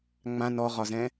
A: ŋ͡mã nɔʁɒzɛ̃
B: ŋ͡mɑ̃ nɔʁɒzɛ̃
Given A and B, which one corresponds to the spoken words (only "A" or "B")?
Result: A